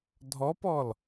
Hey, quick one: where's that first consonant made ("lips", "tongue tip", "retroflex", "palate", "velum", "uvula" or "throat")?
tongue tip